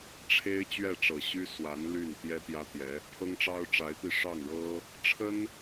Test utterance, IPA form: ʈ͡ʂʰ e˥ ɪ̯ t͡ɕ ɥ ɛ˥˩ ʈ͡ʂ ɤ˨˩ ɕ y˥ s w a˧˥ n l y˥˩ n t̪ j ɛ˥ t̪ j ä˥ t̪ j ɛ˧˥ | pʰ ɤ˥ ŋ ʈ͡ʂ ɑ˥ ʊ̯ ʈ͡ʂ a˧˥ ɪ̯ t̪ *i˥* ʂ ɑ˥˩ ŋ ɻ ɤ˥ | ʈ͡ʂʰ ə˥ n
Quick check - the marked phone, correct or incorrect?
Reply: incorrect